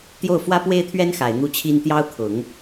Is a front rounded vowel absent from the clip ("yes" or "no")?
yes